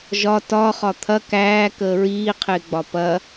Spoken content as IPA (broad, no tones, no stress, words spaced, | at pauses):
ʒɒ tɒ χɒt̪ʰɐ kæː kəːɹiːqʰɪːɡ͡bɒ pɐ